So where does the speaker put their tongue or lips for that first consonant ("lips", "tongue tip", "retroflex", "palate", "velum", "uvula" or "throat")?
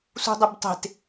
tongue tip